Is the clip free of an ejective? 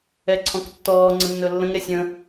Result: yes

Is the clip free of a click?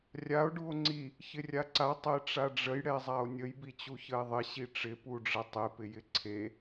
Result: no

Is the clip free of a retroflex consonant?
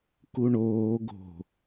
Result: no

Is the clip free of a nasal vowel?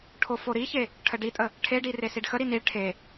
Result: yes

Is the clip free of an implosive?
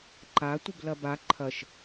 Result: yes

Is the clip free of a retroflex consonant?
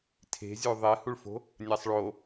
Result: no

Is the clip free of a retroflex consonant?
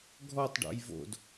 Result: no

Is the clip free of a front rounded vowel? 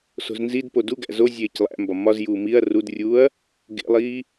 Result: yes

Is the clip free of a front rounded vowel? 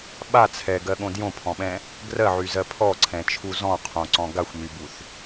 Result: no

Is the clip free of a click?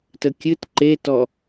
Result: no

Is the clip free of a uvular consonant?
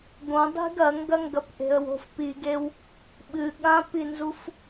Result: yes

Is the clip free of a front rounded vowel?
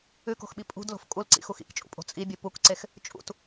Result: yes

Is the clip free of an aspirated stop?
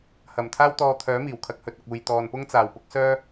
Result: no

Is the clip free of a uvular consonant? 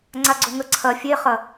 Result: no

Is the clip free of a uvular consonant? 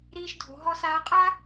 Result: no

